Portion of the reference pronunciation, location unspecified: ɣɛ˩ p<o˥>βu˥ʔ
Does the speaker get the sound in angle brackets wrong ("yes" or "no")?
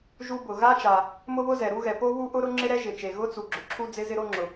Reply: no